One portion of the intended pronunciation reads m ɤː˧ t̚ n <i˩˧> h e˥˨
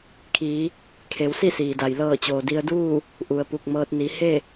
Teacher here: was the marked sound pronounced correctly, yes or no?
yes